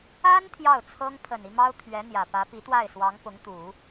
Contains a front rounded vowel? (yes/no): no